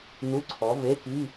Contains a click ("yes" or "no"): yes